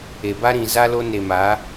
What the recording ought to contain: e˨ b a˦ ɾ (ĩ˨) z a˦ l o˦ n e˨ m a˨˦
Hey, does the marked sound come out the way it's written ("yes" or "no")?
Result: yes